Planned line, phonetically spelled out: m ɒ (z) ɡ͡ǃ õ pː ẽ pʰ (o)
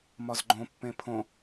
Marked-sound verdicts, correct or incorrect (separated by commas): correct, incorrect